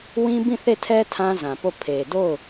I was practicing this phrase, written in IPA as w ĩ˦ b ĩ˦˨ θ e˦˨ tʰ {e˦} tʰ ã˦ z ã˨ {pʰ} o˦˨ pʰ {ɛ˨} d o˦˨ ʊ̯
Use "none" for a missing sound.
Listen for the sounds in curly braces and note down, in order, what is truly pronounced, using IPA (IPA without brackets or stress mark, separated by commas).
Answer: ɛ˦, p, e˨